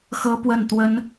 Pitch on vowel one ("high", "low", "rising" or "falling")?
high